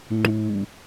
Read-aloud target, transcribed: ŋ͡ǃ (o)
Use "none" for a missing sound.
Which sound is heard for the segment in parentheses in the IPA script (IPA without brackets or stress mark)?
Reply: u